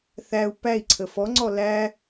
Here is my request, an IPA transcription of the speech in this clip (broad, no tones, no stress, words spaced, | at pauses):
θæu̯ pæi̯ǀʰə fɔŋ͡ǀɔ læ